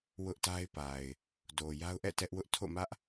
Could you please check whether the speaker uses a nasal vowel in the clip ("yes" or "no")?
no